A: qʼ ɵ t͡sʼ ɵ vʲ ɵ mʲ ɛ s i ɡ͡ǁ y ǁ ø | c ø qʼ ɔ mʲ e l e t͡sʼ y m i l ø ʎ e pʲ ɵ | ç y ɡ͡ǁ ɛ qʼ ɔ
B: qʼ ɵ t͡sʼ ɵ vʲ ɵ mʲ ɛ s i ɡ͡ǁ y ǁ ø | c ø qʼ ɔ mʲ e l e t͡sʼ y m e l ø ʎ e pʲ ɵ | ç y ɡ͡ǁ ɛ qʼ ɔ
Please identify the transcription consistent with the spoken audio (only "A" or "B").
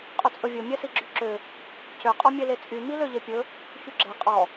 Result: A